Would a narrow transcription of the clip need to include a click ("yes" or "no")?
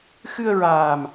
no